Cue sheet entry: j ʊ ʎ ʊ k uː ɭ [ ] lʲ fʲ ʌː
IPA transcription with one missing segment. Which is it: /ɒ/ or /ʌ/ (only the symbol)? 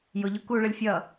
ʌ